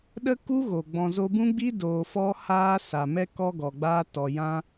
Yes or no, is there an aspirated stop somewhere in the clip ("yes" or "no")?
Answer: no